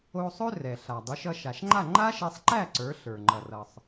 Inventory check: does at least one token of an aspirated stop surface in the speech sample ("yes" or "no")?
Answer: no